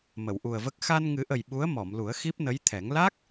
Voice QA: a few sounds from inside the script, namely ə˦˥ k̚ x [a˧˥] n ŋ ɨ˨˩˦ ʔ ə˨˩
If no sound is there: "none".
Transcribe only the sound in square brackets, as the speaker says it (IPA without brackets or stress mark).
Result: a˧